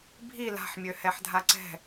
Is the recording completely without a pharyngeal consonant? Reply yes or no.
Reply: no